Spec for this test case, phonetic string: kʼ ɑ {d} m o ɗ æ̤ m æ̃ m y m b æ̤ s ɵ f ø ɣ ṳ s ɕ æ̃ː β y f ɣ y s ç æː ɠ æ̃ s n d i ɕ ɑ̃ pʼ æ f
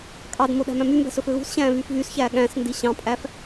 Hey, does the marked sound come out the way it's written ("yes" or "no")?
yes